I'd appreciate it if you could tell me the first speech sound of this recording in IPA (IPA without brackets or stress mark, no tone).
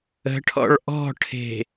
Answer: ə̤